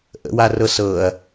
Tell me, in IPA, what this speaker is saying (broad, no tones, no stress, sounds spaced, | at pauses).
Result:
ʔ ə̰ w a r ɤ s ɤ ɐ̯